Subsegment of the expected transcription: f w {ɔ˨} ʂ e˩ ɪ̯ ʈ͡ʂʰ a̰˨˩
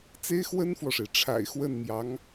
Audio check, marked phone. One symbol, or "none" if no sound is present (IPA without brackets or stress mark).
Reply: ɔ˨